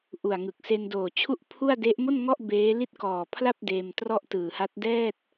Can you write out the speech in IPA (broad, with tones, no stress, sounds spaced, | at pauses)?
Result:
ʔ u˨˩ a̯ ŋ ɯ˨˩ k̚ s e˧ n d oː˨˩ t͡ɕʰ u˥˩ ʔ pʰ u˥˩ a̯ d e˦˥ ʔ m o˥˩ n ŋ ɔ˥˩ ʔ b eː˦˥ l i˥˩ t̚ k ɔː˨˩ pʰ l a˥˩ p̚ d eː˧ m t r ɔ˥˩ ʔ t ɯː˨˩ h a˦˥ t̚ d ɛː˥˩ t̚